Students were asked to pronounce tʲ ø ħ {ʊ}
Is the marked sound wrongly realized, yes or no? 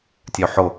no